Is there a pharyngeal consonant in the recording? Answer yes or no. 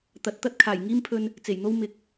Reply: no